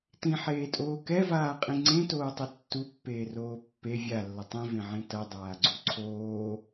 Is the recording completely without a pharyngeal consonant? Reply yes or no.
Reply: no